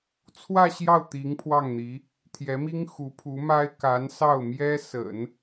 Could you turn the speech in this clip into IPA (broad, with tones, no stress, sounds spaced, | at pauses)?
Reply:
t͡sʰ w ä˥˧ ɕ j ɑ˥˩ ʊ̯ t̪ i˧˥ ŋ pʰ w ɑ˥˩ ŋ n̪ i˧˥ | t̪ʰ j ɛ˧˥ m i˥ ŋ x u˧˥ pʰ u˧˥ m a˥ ɪ̯ k a˧˥ n s ɑ˥˩ ʊ̯ m j ɛ˥ s ə̰˨˩˦ n